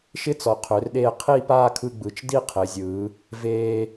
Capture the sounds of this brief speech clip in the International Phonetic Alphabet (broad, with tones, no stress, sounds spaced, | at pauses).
ʃ ɪ˥ t͡s ɔ˩˧ qʰ ø˩˧ r ɗ eː˧ qʰ i˥˧ p aː˥˧ kʰ ɯ˧ ɡ͡b ɯ˩˧ t͡ʃ d i˥˧ qʰ ɪː˩˧ zʲ ɯː˩˧ | v eː˧